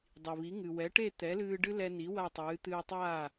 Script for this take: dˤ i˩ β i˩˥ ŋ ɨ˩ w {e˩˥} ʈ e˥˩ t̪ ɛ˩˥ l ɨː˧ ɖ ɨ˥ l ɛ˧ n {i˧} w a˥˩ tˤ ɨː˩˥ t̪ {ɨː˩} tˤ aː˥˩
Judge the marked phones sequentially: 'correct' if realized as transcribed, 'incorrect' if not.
incorrect: ɛ˩˥, incorrect: i˩˥, incorrect: ɨː˧

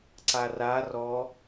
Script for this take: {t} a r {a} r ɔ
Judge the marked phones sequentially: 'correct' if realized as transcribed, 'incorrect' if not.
incorrect: ǀ, correct

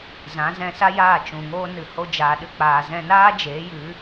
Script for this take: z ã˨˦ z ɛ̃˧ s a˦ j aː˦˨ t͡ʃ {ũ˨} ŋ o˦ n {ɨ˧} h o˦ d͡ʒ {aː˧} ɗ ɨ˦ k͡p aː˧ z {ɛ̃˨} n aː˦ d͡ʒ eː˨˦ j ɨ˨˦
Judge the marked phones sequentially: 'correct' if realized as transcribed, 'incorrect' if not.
correct, correct, correct, incorrect: ɛ̃˧

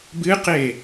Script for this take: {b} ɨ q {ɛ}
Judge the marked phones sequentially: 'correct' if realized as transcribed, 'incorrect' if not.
correct, incorrect: e

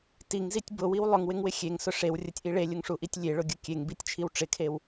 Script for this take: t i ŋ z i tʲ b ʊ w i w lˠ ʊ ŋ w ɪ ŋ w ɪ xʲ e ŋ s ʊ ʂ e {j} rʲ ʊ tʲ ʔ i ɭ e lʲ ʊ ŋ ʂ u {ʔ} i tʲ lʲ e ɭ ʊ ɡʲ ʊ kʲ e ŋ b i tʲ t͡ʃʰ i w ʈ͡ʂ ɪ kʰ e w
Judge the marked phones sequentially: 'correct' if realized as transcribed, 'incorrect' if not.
incorrect: w, correct

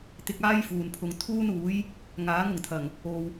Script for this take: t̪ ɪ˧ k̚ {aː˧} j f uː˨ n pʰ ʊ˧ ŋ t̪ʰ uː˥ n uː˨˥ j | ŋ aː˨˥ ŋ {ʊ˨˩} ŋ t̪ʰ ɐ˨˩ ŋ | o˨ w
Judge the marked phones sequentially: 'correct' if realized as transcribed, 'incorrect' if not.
incorrect: aː˥, correct

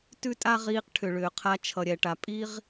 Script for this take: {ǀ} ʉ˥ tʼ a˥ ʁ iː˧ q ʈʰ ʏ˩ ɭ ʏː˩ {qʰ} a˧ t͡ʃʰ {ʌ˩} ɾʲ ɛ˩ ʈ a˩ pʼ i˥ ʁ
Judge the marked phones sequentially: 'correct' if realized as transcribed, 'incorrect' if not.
incorrect: t, correct, correct

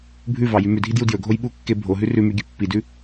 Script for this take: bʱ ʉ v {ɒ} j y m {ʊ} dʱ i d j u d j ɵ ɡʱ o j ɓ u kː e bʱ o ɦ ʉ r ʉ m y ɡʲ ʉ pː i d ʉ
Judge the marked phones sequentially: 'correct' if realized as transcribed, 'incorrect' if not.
incorrect: ɑ, incorrect: ʉ

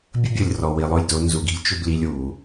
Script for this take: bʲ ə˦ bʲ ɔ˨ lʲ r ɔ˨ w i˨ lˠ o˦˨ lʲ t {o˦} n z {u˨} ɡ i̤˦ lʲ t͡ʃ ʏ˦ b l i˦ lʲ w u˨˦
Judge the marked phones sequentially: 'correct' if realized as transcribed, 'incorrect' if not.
correct, correct

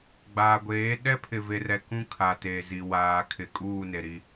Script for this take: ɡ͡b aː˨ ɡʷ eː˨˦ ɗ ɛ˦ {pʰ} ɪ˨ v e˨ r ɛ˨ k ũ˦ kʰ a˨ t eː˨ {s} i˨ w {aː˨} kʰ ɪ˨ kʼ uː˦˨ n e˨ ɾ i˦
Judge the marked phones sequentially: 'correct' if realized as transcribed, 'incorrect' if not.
correct, incorrect: z, correct

